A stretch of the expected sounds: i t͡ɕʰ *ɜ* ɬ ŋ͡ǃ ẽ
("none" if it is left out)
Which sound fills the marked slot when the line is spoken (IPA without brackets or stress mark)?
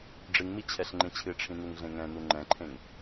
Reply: ɛ